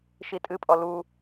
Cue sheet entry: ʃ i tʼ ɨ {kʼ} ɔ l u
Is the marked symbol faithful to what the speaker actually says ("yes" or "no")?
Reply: no